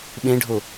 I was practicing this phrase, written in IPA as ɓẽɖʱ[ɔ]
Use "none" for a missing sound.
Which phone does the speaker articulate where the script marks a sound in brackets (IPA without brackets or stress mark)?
o